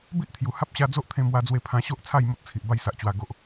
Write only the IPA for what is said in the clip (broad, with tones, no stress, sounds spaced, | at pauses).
b i˦ ʔ t̪ʰ j u˨˩ h a˦ p̚ ɕ a˧ d͡z o˦ ʔ t̪ʰ ẽ˧ m w a˧ d͡z w e˧ pʰ ã˧ ɕ o˦ ʔ t͡sʰ a˥˧ j m o˦ t̚ t͡sʰ i˨ ʔ b a˥˧ j s a˨ ʔ t͡ɕ w a˨˩ ɡ o˨ ʔ